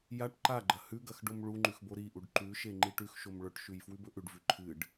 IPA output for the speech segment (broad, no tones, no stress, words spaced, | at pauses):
jaʈ ǃaɡ͡ǃɐ hʉɡɐx ɖomɭuŋ͡ǃʉx boɾiʔuɖ ǃʉʃe ŋ͡ǃiʈʉxʃom ɭɵʈʃʉj fwʉbɵʔʉɖvʉ ǃʰɨɖ